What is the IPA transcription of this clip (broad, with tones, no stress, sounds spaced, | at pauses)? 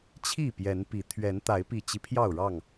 t͡ɕʰ i˥˨ p j ɛ˨˦ n p i˨˦ t̪ʰ ɥ ɛ˨˦ n t̪ a˨˦ ɪ̯ p i˨˩ t͡ɕ i˦ pʰ j ɑ˥˨ ʊ̯ ɻ ɑ˥˨ ŋ